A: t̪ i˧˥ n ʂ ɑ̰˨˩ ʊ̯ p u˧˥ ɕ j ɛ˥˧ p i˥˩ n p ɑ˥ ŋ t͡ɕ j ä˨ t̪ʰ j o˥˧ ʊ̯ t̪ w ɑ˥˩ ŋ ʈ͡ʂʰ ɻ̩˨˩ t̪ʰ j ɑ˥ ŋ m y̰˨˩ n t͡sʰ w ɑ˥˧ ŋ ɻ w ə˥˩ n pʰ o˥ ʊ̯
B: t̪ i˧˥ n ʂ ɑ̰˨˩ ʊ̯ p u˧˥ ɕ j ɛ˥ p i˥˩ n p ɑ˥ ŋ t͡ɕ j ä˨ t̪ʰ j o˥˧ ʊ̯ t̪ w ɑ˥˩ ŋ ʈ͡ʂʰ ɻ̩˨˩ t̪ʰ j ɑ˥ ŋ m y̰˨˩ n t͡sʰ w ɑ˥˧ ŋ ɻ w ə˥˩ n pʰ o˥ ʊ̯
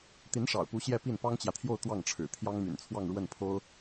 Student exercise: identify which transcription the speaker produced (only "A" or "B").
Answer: A